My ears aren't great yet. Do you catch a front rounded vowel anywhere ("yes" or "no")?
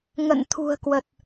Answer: no